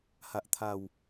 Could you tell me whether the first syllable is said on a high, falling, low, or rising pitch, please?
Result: high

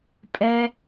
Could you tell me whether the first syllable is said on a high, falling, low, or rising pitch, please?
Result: high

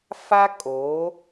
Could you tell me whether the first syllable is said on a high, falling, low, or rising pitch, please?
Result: high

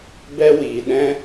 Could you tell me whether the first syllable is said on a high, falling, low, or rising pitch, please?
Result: high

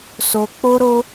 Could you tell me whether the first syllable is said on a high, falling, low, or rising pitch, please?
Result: high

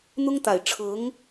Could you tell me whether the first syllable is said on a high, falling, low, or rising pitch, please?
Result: high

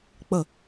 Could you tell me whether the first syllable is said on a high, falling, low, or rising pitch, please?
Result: falling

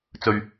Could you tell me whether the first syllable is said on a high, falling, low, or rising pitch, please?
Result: low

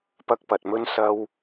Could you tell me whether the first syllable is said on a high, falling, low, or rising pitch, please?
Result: high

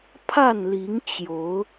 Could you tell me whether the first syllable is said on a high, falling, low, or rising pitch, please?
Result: falling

